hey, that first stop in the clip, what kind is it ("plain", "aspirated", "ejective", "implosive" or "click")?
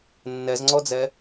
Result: click